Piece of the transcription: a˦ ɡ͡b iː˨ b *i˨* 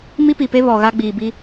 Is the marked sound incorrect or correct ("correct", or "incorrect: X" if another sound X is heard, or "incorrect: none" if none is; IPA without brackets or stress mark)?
incorrect: i˦